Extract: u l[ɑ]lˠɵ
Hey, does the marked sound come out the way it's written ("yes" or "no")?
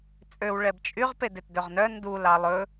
yes